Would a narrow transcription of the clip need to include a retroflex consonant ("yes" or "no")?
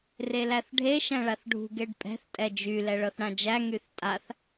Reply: yes